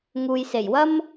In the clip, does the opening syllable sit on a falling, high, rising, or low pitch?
low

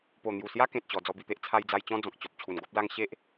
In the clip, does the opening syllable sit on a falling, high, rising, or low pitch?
low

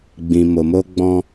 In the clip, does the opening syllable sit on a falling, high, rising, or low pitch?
low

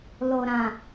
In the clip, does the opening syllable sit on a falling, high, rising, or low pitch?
low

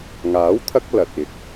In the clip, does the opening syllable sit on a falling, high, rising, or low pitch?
rising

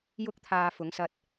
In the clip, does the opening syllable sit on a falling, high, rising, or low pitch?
high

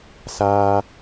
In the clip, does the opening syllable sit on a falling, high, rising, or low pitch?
high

